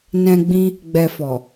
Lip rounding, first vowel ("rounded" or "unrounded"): unrounded